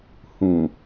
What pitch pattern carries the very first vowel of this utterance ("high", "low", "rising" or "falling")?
low